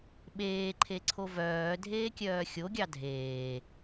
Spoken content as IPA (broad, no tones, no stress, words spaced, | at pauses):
ɓeːǃʰeǀʰo vœːdʱeːkʲœː xʲoɡʲɑ dʱeː